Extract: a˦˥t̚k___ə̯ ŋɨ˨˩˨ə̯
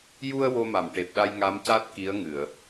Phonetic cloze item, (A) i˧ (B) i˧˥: B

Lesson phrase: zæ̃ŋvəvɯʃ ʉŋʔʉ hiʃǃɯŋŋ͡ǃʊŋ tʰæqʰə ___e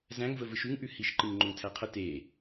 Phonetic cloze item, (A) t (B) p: A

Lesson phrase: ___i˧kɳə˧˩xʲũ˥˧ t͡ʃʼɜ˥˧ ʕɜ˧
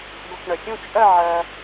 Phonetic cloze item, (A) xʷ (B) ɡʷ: B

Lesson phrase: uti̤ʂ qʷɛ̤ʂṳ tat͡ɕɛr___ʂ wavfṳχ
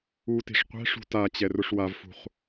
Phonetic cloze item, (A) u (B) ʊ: B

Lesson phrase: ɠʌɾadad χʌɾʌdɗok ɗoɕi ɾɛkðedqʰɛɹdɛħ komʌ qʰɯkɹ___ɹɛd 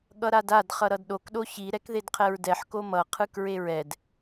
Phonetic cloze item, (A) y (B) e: B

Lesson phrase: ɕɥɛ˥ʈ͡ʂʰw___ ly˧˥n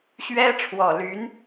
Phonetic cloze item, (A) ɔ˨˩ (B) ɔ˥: A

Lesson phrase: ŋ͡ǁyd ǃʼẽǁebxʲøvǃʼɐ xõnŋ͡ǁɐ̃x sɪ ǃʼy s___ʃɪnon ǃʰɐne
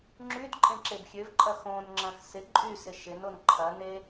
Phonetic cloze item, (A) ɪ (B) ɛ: A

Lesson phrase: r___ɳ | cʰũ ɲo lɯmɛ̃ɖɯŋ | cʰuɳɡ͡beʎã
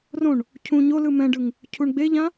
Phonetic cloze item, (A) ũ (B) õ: B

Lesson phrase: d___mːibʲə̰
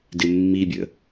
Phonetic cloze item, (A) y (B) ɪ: B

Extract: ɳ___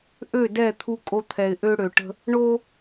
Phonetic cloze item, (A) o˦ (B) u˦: A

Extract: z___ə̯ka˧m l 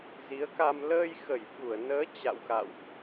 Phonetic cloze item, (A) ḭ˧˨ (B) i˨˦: B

